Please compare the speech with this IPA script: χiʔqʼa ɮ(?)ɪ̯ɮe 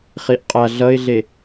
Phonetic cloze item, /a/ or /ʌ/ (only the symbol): ʌ